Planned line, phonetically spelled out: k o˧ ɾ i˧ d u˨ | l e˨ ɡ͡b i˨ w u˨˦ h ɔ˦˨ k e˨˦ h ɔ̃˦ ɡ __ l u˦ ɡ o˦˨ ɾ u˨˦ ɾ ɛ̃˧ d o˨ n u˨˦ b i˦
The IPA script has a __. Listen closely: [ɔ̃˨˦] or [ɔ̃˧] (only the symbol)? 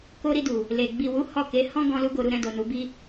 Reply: ɔ̃˧